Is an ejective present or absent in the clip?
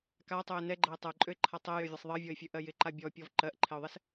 present